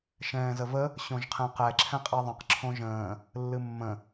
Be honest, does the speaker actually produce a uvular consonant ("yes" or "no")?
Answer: yes